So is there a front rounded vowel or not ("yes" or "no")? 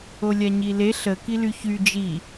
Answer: yes